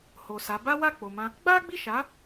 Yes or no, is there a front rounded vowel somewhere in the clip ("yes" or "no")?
no